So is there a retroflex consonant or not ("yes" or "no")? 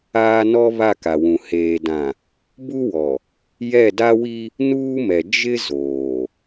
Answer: no